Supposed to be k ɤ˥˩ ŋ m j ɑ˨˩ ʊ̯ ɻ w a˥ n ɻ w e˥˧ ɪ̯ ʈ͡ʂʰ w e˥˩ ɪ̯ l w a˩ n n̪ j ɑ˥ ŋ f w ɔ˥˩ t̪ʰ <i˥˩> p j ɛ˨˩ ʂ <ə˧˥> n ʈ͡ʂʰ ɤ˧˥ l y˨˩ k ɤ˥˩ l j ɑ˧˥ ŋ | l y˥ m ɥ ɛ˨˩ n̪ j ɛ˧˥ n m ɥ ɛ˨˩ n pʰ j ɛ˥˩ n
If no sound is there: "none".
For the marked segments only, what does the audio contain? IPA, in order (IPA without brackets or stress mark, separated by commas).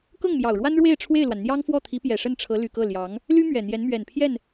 i˧˥, ə˥˩